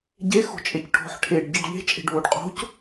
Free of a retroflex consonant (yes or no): no